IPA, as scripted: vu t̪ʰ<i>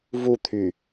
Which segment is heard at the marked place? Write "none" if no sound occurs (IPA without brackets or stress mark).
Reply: y